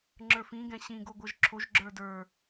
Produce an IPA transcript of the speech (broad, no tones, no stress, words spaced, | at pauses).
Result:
ŋ͡ǁə˞fĩ ɡɛ̃ɕĩ ɡoɡʷɤʒǁʰoʒ ɡ͡ǁə˞də˞